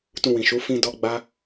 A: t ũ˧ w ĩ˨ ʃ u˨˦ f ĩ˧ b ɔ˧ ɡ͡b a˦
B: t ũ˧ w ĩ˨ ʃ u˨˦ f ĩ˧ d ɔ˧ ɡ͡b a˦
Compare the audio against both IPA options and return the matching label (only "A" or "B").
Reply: B